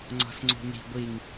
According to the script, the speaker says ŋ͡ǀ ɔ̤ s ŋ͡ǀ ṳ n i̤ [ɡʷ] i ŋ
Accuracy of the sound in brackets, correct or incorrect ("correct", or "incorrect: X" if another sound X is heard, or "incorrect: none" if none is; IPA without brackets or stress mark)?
correct